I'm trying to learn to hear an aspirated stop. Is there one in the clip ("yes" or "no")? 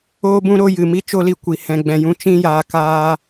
no